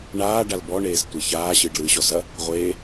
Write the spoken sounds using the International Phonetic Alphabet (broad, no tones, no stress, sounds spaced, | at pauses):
ɳ aː ɖ a l b ɔ ɳ eː s tʷ e ç aː ɕ ɨː ɖ l ɨː ɕ ɔ s ɐ | ʁʷ eː